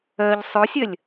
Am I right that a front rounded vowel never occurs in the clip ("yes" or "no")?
no